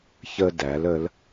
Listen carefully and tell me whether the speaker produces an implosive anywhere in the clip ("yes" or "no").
no